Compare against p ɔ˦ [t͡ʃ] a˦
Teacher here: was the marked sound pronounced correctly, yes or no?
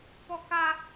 no